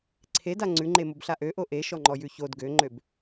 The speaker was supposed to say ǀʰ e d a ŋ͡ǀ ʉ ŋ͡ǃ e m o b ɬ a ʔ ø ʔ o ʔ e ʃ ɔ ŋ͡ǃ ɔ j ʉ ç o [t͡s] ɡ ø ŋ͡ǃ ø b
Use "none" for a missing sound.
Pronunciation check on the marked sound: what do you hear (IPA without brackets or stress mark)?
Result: d